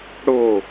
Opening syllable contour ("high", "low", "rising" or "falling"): falling